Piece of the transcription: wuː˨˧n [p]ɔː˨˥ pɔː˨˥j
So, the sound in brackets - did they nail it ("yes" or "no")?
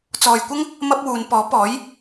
yes